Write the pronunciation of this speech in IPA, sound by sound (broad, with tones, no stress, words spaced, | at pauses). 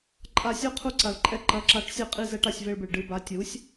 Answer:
ǃʼa˧sʲo˥ qʰu˧ǀa˩ɭǃʼɛ˧ ǃɐ˩˥ǁa˩˥ʈsʲɘ˧qʼi˧ zɛ˧ʈa˥˩sʲve˧ɭbɨ˩ɭ ɖɨ˧ba˩˥ tʲu˩˥sʲ